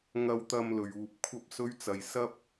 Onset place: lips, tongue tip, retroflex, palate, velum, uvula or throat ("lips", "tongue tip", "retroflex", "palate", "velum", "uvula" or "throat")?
velum